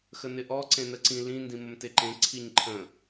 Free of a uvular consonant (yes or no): yes